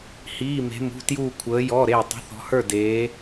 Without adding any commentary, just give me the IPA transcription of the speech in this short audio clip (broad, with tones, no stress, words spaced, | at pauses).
hiː˩˧˩me̤˩˧mṳ˩˧˩tjuː˧˩ kʷʰəː˩˧jɔ˩˧˩ ɾe˧˩ tˤə̤˩˧˩θɔ̤˩˧hə˞˧˩ deː˩˧